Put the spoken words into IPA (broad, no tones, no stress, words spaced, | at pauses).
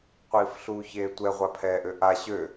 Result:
qʷiːfɬuːçeːtʷɛ ʁʷapʰɛːʔøʔa ɕø